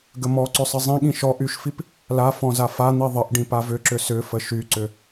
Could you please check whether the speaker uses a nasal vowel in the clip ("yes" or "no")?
yes